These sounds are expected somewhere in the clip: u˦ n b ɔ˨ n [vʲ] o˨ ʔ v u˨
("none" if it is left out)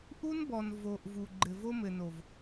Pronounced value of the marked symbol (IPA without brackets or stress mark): v